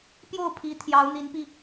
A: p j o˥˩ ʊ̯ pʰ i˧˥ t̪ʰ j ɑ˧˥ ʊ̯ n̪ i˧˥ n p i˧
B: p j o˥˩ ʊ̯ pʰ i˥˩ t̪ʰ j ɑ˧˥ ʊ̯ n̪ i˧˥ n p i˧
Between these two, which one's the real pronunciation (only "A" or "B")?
A